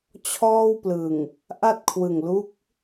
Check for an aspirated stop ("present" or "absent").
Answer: present